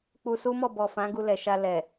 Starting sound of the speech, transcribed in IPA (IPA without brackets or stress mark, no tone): k͡p